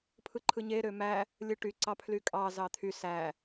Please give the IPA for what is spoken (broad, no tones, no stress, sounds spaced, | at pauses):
pʰ ɯ ǃʰ ɯ ɲ e ɾ ø m æ | lʲ ɯ ʈ y ǀ ɑ pʰ l y kʼ ɑ z ɑ t̪ʰ y s æ